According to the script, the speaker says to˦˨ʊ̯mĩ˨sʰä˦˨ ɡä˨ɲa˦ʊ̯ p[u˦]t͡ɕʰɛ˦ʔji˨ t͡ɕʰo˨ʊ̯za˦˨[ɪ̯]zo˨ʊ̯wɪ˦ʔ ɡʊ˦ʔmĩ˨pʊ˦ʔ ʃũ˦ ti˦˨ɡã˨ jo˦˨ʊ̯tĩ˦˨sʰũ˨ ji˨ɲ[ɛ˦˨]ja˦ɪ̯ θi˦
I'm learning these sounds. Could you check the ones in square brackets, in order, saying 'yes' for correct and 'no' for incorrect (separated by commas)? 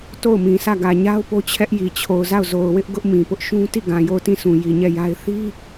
no, no, yes